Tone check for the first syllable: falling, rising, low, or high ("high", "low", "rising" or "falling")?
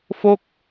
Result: falling